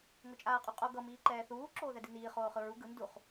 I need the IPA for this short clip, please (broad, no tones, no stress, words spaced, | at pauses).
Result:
ŋot͡ʃʼaːqʼuqʼo ɡʌ miːǃɛːθuː ǁoːðɛdiniː χoːχɯɹu ɡɯn duχ